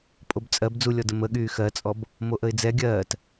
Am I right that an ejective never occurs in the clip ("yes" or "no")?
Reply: no